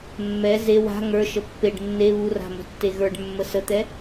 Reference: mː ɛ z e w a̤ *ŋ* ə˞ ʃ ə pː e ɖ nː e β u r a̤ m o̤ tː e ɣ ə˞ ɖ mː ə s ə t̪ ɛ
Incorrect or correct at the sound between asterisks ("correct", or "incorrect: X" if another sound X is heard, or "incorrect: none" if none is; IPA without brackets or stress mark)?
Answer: correct